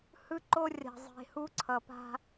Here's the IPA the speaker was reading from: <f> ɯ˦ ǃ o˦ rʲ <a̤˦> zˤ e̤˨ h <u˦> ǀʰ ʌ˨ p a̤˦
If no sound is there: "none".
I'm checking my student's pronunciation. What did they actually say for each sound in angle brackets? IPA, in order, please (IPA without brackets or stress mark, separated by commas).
h, a̤˨, u˦